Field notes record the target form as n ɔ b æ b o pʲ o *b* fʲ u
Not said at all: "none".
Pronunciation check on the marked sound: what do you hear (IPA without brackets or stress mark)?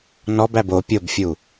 b